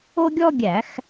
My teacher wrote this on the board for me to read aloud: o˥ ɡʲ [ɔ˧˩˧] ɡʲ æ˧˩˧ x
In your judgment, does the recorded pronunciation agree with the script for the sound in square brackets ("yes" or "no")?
no